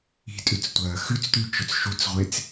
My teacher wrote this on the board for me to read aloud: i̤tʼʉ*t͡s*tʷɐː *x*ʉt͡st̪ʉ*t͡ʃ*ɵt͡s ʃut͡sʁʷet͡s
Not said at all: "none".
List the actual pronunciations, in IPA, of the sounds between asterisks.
t͡s, x, t͡ʃ

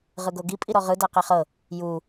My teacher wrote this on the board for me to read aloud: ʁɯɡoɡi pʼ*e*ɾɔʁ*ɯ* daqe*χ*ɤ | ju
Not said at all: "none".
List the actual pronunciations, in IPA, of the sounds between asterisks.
i, ɯ, χ

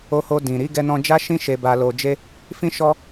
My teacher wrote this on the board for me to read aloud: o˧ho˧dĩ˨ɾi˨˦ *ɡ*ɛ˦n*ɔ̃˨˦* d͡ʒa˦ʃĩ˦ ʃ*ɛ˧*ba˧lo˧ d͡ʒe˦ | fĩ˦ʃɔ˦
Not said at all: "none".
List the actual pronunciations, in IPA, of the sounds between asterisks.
ɡ, ɔ̃˦, e˧

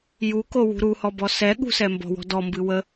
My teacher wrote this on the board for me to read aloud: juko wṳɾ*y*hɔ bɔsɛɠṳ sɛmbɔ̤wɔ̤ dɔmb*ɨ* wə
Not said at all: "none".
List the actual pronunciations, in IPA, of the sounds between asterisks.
u, ɨ

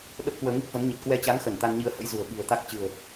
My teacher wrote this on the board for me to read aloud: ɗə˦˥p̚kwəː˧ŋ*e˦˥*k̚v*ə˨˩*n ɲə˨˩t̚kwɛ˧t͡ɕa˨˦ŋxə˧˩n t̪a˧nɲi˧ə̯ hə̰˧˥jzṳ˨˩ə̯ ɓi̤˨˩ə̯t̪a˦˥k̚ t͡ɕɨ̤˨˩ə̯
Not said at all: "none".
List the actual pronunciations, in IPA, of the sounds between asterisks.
i˦˥, ə˨˦

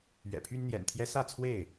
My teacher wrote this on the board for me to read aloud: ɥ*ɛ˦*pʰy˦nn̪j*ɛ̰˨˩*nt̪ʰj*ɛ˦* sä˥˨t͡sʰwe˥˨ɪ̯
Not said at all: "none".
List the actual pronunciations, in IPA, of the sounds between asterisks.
ɛ̰˨˩, ɛ̰˨˩, ɛ˦

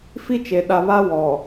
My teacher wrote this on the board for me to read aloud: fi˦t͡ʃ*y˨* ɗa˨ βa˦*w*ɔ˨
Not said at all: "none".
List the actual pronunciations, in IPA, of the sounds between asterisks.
e˨, w

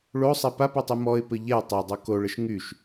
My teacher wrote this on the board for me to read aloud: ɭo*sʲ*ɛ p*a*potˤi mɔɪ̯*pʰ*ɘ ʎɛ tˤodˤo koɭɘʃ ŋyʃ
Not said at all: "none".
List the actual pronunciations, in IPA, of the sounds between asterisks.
sˤ, a, p

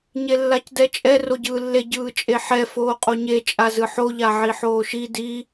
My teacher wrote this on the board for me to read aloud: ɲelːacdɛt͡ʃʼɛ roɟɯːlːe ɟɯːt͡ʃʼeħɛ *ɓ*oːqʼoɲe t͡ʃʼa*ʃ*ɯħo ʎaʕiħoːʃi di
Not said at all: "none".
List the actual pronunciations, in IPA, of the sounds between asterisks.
f, z

